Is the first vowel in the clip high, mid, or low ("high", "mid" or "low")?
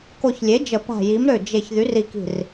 mid